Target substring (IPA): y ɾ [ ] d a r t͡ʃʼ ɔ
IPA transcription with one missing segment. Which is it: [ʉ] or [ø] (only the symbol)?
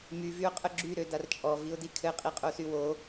ø